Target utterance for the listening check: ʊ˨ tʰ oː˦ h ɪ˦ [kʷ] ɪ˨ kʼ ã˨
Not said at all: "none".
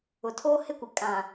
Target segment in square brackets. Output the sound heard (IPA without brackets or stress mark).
kʷ